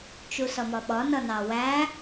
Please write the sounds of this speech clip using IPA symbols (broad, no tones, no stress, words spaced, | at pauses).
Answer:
t͡ʃusʌmɒɓɒ nʌnɑwæ